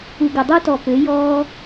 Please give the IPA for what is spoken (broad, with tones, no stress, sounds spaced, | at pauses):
u˨ ɡ ə˨ dˤ o˦ t ɔ˨ p ø˨˦ j ɔː˦